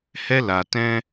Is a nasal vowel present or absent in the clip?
present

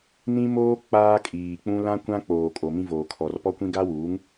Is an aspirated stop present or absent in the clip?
present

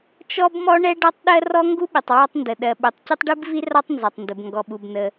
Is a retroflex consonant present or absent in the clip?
present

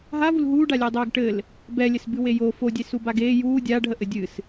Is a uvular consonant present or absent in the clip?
absent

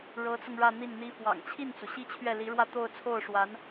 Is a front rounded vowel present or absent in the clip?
absent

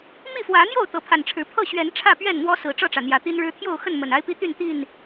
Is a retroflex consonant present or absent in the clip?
present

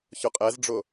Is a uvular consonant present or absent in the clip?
present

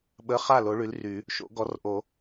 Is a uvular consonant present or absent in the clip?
present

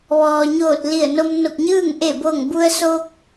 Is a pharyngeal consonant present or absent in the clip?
absent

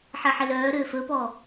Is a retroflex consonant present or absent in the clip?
absent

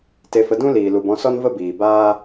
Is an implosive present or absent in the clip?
absent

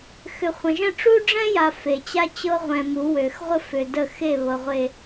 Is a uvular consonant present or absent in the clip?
present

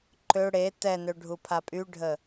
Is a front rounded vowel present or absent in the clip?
present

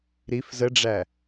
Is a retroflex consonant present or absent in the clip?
present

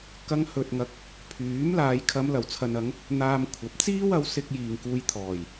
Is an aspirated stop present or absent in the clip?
present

